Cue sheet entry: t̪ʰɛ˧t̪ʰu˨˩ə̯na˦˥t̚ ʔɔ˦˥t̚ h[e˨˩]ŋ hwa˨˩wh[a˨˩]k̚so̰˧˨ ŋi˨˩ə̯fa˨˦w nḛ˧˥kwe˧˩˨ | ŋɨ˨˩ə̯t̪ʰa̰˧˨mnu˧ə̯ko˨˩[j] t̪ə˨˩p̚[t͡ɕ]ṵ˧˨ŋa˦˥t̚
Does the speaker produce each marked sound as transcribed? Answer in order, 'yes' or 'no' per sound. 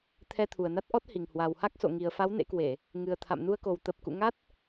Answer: no, no, no, no

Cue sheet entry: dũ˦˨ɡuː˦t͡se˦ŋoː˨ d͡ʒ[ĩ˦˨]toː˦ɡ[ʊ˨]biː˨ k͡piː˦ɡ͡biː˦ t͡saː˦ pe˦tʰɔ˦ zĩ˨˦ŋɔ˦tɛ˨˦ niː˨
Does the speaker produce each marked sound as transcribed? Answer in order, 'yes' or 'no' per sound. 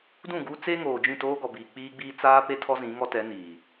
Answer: yes, no

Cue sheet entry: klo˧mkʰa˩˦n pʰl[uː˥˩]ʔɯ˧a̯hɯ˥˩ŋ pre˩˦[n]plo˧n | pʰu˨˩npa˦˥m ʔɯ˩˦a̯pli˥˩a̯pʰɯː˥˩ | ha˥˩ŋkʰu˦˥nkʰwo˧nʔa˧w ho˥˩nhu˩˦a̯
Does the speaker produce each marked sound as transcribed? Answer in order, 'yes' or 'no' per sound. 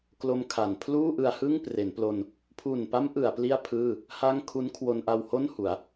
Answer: yes, yes

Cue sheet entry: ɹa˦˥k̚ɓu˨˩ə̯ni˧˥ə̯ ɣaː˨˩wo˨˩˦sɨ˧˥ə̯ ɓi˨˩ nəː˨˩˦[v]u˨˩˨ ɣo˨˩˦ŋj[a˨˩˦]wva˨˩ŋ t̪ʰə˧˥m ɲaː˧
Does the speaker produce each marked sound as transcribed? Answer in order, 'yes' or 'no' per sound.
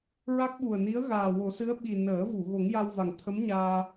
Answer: yes, no

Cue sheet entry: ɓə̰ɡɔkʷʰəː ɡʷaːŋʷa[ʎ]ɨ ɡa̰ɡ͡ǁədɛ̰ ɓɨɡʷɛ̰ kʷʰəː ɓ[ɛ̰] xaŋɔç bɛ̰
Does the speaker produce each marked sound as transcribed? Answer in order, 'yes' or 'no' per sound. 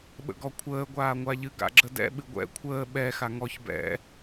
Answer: yes, no

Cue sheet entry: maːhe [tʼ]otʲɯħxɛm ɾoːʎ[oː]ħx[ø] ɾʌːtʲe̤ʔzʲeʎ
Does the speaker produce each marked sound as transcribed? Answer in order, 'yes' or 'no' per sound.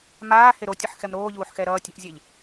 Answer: no, no, no

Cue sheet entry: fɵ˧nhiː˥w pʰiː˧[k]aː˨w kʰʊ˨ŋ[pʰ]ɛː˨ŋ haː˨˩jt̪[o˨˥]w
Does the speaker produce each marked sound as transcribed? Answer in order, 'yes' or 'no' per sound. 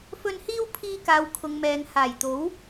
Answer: yes, no, yes

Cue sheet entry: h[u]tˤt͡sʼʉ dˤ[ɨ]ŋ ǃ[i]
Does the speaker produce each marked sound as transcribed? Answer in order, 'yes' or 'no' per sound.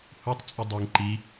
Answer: yes, yes, yes

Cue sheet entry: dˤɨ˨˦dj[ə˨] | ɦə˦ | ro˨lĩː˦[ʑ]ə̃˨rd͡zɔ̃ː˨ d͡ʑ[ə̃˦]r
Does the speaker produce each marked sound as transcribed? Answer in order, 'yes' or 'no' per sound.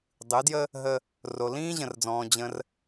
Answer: no, yes, yes

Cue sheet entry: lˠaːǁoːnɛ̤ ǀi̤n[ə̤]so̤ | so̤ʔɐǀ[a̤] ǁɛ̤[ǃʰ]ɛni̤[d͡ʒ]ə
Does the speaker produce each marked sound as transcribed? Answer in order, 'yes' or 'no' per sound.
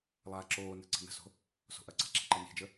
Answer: yes, yes, no, yes

